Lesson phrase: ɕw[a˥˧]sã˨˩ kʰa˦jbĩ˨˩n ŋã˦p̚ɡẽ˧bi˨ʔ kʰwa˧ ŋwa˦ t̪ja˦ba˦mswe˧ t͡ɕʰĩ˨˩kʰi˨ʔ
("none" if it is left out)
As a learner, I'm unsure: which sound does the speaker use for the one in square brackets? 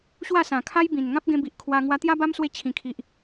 a˥˧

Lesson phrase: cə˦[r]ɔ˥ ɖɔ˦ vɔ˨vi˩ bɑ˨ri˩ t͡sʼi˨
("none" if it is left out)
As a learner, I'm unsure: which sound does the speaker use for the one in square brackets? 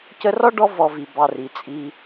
r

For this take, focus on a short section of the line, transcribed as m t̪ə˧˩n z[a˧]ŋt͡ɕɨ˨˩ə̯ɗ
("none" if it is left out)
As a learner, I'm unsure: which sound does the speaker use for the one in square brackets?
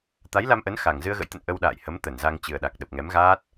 a˧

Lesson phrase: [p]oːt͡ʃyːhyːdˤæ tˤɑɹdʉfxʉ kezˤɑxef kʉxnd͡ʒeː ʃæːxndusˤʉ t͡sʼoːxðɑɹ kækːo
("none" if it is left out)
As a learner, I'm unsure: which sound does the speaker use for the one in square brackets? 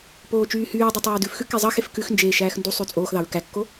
p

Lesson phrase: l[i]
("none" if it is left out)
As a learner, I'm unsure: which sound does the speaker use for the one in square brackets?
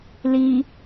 i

